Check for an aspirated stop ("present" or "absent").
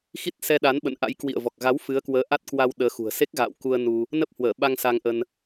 absent